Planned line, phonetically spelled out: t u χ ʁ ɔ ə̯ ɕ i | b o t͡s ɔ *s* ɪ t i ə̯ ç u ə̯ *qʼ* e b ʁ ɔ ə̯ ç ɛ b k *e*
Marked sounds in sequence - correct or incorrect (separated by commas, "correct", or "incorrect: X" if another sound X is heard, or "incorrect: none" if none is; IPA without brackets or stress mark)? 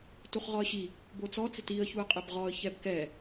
incorrect: t͡s, correct, incorrect: ɛ